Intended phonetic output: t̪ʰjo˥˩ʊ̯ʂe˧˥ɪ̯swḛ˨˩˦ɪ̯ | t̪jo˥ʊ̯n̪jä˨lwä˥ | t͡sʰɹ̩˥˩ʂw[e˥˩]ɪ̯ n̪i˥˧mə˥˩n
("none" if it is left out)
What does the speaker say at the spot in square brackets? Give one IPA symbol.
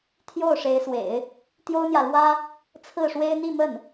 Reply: e˥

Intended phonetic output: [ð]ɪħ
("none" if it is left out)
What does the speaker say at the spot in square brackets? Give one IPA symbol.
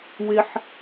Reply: w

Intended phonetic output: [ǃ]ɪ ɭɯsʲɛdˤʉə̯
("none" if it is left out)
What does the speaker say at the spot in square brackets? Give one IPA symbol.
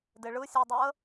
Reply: d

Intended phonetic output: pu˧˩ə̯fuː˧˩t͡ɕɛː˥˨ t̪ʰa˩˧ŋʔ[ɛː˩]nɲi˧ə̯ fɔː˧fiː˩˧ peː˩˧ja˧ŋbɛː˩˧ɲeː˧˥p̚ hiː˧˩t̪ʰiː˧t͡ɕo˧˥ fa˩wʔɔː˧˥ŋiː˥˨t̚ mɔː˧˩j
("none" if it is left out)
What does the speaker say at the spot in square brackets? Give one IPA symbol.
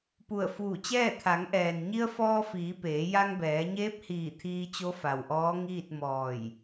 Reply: ɛː˩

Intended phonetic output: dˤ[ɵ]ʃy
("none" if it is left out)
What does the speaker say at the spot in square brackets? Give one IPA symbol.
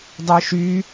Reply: œ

